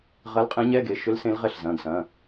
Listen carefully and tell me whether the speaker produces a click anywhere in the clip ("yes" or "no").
no